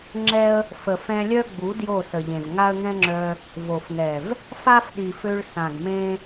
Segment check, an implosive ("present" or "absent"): present